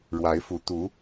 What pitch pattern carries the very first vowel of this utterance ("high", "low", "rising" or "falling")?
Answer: rising